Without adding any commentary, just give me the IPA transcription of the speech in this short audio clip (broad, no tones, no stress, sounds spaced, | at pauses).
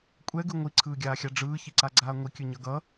kʷʼ ɛ ɡ ɯ ŋʷ i ǀʰ ɯː ɡʲ aː xʲ a ɖ͡ʐ ɯː ç i ǀ a ɡ͡ǀ aː ŋʷ i kʲ ɯ ɲ ʌ ɡ ʌ